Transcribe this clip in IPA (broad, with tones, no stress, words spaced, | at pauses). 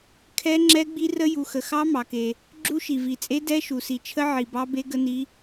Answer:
kʰɛ˦˥ ŋ͡ǁɛ˦˥ɡ͡bi˦˥ rə˦˥ ju˨xə˨xɑ˦˥ mɑ˨ke˨ | ɡ͡ǁu˦˥ʃi˨vi˨t͡sʼe˦˥ dɛ˦˥ʃu˨si˨t͡ʃʰə˦˥ ʕi˨bɑ˦˥be˦˥ ɡə˦˥ni˦˥